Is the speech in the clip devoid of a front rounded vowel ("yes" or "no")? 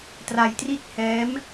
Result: yes